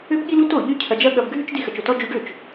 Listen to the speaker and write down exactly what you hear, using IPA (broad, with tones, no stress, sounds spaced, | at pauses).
ø˥ b ɠ i˥ l u˥ t o˥˩ ʎ y˥ cʰ ɐ˧ d͡ʒ ɐ˥ ɠ ɐ˧ b ɡʱ y˥ t͡ʃ d i˥ x ɐ˧ t͡ʃ o˥˩ t ɔ˥ d͡ʒ y˧ ɖ ø˥˩ t͡ʃ